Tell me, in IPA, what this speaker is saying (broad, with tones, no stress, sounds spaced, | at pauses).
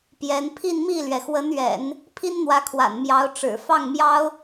p j ɛ˧˥ n pʰ i˥˧ n m i˥˩ l ɥ ɛ˩ x w ə˧˥ n ɥ ɛ̰˨˩˦ n | pʰ i˥ n n̪ w ä˧˥ kʰ w a̰˨˩ n m j ɑ˧˥ ʊ̯ ʈ͡ʂ ɻ̩˨˩ f ɑ˥˩ ŋ m j ɑ˥ ʊ̯